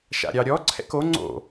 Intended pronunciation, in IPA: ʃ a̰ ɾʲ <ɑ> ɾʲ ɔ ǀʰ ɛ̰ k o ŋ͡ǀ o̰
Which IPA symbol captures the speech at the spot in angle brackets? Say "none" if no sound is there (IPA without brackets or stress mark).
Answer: ɑ